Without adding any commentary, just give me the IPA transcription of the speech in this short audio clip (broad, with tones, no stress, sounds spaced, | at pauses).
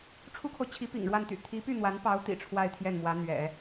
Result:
ʈ͡ʂʰ u˥ kʰ o˨ ʊ̯ t͡ɕʰ i˧˥ p ḭ˨˩ ŋ ɻ w a˥˩ n t̪ y̰˨˩ t̪ʰ i˧˥ p y˥˩ n̪ w a˧˥ n p ɑ˧˥ ʊ̯ t̪ ḭ˨˩ ʈ͡ʂʰ w a˥˧ ɪ̯ t̪ʰ j ɛ˥˩ n m w ä˧˥ n̪ ɥ ɛ̰˨˩˦